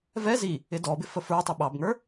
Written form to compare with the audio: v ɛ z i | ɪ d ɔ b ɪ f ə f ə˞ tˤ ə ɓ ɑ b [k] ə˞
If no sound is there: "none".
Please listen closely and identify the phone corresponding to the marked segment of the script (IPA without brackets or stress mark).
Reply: ŋ